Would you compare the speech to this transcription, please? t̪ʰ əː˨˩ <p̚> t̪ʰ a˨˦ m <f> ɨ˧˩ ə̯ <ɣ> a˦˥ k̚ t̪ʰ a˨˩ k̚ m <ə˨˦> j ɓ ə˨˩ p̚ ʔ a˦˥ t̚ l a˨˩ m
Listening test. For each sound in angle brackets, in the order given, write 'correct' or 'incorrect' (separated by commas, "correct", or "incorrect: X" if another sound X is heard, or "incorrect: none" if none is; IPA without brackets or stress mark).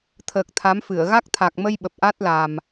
incorrect: k̚, correct, correct, incorrect: ə˧